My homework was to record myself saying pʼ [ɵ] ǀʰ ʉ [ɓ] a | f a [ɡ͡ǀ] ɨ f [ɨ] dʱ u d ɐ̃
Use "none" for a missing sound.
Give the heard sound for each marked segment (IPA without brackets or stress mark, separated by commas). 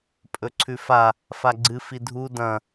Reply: ɵ, f, ɡ͡ǀ, i